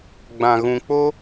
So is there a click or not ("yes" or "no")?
no